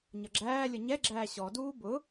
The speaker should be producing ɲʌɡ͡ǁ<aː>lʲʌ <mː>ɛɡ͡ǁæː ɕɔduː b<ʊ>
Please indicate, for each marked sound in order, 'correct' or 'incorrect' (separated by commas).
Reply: incorrect, incorrect, correct